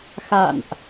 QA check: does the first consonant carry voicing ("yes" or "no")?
no